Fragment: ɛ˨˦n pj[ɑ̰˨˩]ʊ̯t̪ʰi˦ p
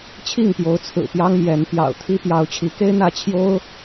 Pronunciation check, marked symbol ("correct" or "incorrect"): correct